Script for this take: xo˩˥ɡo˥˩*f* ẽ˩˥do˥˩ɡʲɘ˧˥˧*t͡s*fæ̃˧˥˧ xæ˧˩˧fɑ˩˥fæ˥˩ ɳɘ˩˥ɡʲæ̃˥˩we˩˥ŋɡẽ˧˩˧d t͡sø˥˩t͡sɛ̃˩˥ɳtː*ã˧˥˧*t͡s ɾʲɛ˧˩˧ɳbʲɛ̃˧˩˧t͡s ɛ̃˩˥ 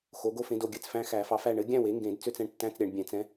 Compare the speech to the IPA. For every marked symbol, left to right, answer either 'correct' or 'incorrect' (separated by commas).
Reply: correct, correct, incorrect